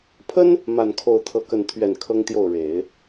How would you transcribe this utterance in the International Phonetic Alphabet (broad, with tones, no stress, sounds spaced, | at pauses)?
pʰ ə˥ n | m a˥˧ n kʰ o˥˧ ʊ̯ t̪ʰ ɤ˥˧ k ə˥˧ n t̪ʰ ɥ ɛ˥˩ n kʰ ɤ˥ ŋ t̪ j o˥˩ ʊ̯ ɻ e˨˩˦ ɪ̯